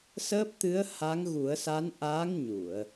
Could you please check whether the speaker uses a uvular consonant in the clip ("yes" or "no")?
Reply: no